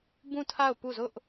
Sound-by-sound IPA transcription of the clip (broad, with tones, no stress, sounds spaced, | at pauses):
b ũ˦˨ tʰ a˦˨ ʊ̯ p u˦˨ z ʊ˦ ʔ